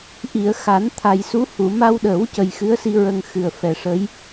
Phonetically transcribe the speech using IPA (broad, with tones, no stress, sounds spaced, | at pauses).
ʔ i˨˩˨ ə̯ x a˨˩˦ n t̪ʰ a˨˩ j s u˧˥ h u˨˩˨ m a˧ w ɗ əː˨˩˦ w c ə˨˩ j x ɨ˧˥ ə̯ s i˧ ɹ ə˧ ŋ x ɨ˨˩ ə̯ f ɛ˨˩ ʂ ə˧˥ j